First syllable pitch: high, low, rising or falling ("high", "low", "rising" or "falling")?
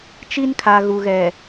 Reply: high